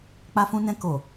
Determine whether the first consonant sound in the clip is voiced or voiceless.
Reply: voiceless